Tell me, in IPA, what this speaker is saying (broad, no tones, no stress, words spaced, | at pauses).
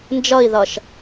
nd͡ʒʌi̯ðʌʃ